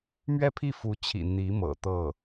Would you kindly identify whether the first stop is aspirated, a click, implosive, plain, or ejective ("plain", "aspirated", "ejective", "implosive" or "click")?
aspirated